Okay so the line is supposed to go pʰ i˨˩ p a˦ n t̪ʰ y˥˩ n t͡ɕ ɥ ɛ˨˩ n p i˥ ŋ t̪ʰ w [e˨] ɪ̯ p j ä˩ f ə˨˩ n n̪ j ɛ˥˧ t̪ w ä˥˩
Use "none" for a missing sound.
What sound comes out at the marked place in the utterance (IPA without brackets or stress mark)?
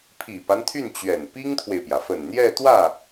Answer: e˨